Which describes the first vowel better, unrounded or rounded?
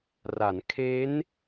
unrounded